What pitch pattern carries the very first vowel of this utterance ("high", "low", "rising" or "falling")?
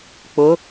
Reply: rising